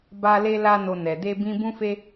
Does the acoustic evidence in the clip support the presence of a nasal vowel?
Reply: yes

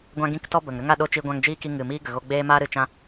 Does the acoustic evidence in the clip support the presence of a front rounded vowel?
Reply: no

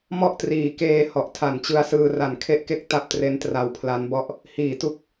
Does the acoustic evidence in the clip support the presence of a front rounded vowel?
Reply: no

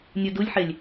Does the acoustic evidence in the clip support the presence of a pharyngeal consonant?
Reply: yes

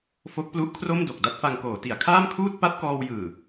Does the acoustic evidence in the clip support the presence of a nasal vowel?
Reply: no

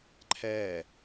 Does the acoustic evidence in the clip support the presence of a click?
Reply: yes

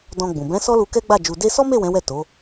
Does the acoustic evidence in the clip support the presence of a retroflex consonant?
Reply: no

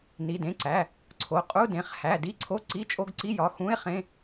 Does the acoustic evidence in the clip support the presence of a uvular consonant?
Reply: yes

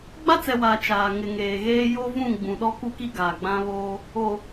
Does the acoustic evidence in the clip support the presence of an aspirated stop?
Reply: no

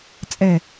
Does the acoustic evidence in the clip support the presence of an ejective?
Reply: yes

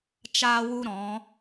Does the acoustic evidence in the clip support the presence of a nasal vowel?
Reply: yes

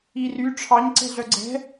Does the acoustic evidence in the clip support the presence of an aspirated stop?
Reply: yes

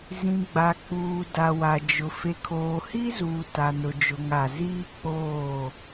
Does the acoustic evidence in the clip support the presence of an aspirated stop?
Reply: yes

